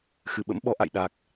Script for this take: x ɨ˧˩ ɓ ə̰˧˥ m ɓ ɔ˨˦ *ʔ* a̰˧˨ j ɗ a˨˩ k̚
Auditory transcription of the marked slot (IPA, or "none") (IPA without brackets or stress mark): ʔ